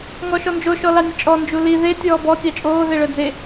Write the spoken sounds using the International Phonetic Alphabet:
ŋɔʃɔnd͡ʒo ʃɔlɑnʲət͡ʃʼɔ nd͡ʒuli ðe tʲɔːbɔ tʲɑt͡ʃʼoː ðeɭœd͡ze

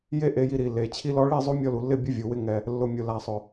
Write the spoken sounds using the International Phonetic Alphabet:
je˦ ʔe˧ji˧ɾi˨lːe˨ t͡ɕʰi˧lɔ˧ɭi˦˨ zˤo˦mʲɔ˧lu˨lːɪ˦˨ bʲʊ˦vʲu˨wɪ˦ŋɛ˧ | lːʊ˨mʲʊ˨ la˨sˤʊ˨

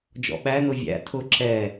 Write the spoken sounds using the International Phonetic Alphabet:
d͡ʒɔ̰ɓænʊ vʲæ̰ tʰʊ ǁʰɛ

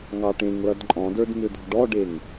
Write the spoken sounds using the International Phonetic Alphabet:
ŋɑʈẽŋlʌd ǃʼɔ̃də˞d mʏd̪ɔ̤ɖɔɖeŋ

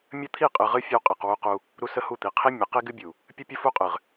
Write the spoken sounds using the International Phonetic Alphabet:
mʲə˦t̪ʰi˦˨qʼɨ˨ʁɨ˦ fʲə˦wqʼi˨q wu˦qu˦ | ɾu˦sə˦hu˦˨t̪i˨ qʰi˦ mʲə˨˦ qi˦ɡɨ˦bʲu˨ | pʲɨ˦pʲə˦fu˦qʼɨ˨ʁ

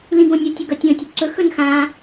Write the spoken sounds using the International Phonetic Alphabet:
lĩɡõnʲʌ tʲɘɡʌtʲõ tʲɵǀɵ xɵnxã

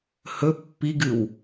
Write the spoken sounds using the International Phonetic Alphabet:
hɵ pːiɡɨw

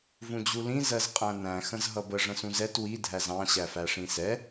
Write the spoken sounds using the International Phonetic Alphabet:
vũd͡ʑulĩ zɜzqʼæ̃næ̃ xə̃zɦʌbə ʐə̃sũzɛt wi dʱæzɑ̃ ɕæfæʂĩsɛ

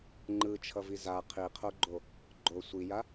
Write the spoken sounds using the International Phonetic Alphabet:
ŋ͡ǃɯt͡ʃʰʌvi za qʰiqʰoɡ͡ǃo | ɡ͡ǃo sʷija

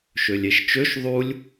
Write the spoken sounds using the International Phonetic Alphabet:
ʃølʲeʃt͡ʃøʃ ðˤulʲ

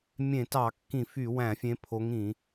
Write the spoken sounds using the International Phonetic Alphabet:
mʲẽ˧˩˧tɑ˧˩˧ kːĩ˧˩˧fy˧˩˧wæ̃˧˩˧fʲẽ˨˦ pʰo˨˦ŋĩ˧˩˧

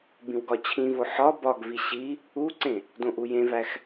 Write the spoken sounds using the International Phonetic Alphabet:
bĩwɡɒt͡ɕʰĩvo ħɒ bɒɡvi ɕi | uǀẽ | dõʔujẽvæx

